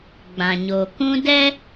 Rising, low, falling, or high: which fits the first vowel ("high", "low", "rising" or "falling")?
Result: low